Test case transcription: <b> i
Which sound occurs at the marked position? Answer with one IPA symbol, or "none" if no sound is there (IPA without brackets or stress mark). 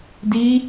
d